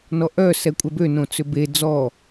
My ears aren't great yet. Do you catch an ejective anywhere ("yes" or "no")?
yes